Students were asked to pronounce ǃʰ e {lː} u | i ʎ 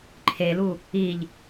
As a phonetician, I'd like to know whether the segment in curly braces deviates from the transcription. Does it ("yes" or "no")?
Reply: yes